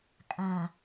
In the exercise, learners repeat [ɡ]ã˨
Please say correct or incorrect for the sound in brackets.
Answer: incorrect